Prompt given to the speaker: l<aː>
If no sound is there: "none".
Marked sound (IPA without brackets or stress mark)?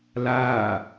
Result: aː